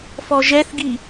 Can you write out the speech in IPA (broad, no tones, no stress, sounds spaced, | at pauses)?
f ɔ ʒ ɛ θ ɡ i